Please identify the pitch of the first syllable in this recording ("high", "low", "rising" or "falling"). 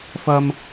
high